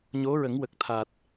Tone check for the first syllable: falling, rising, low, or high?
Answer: rising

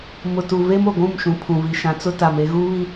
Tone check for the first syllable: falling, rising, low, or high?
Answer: low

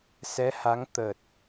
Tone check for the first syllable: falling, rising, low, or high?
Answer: rising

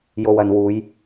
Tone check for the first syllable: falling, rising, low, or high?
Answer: low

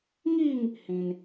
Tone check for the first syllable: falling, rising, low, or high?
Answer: falling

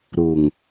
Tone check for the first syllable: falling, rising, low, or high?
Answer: low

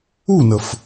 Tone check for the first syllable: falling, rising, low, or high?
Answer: falling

